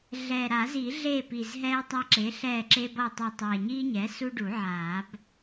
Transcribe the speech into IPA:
ɮ ɛː˨˩ ɾ a˨˩˦ z i˨˩˦ ɮ eː˦˨ p i˨˩ z ɦ ɛː˦ tˤ a˦˨ ǁ e˩˥ ɬ ɛː˦˨ ǁ e˦ b ʌ˦˨ e̯ tˤ ʌ˦˨ tˤ ɛː˨˩ ɲ i˦ ɲ ɛ˩˥ s u˦ ɖ u˨˩˦ ʕ aː˨˩˦ b

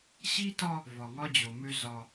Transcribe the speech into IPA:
ɕ i˦ t ɒ˦ | v ɒ˨ ŋ ɒ˦ d͡ʑ o˨ m ø˦ z ɒ˦

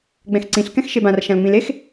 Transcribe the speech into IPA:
ɡ͡b ɛ̃ x ǀ ĩ ɬ k ɛ̃ x ʃ e b ã r ʃ ã l ŋ͡m ĩ l e x

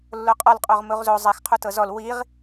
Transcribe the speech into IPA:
lː o qʼ ɔ l qʼ o ʁ m u ʁ z o zˤ i x qʰ u t ɤ z ɔ l w i ʁ

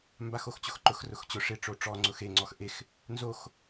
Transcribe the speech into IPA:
m b a x o x t͡ɕ ʊ x ǃ ʊ x r ʊ x t͡ɕ ʊ ʂ ɪ ʈ͡ʂ o ʈ͡ʂ ɔ ŋ͡ǀ ʊ x e ŋ͡ǀ ɔ x ʔ e x | n z o x

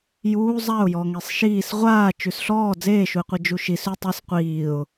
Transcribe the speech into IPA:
j uː zˤ a ʊ̯ j ɔ ŋ e sˤ ʃ iː s ʁʷ aː t͡ʃ ʉ s ɬ ɔː d͡z eː ʃ u ɪ̯ qʷ i d͡ʒ u ʃ i s ʉ tˤ e s qʷ iː ʊ̯

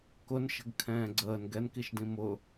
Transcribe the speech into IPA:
k ʊ n ʃ ə̤ ɡ kʰ ɛ̃ː ɡ͡ǀ əː n ɡ ɛ n k i ʃ d ĩ m ʊ

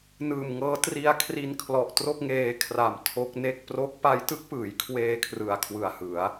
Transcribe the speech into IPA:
n ɯː˨˩ m ŋ ɤː˦˥ t r i˦˥ a̯ kʰ r i˧ n kʰ l ɔ˨˩ ʔ t r o˥˩ k̚ ŋ eː˧ kʰ r a˨˩ m tʰ o˦˥ k̚ n e˥˩ k̚ p r o˦˥ k̚ p a˦˥ j t ɯ˦˥ k̚ p ɯː˩˦ j kʰ w eː˧ kʰ r ɯ˨˩ a̯ kʰ w ɯ˨˩ a̯ h ɯ˩˦ a̯

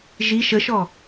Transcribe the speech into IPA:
ʒ i ʃ ə ʃ ɔ

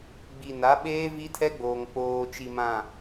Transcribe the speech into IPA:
ɡ͡b i˨ n a˨˦ ɓ eː˦ v i˦ tʰ ɛ˦ ɡ͡b oː˨ ŋ k͡p oː˨ t͡ʃ i˨ m ã˨

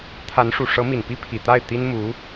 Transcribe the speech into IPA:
t̪ʰ a˧˥ n ʂ u˨˩ ʂ ɤ˧˥ m i˨˩ n p i˥ pʰ i˨˩ t̪ a˥˩ ɪ̯ t̪ i˥ n m u˧˥

